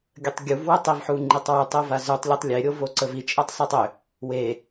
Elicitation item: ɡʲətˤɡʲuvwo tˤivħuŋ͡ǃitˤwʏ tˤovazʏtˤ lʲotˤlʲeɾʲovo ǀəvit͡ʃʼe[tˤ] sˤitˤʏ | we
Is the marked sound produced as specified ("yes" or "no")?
yes